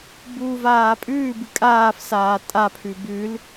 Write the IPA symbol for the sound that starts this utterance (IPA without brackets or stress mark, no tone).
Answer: b